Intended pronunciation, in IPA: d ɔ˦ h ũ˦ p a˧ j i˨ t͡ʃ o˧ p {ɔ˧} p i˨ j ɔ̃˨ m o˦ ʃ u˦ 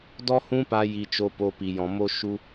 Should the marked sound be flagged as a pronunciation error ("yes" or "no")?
yes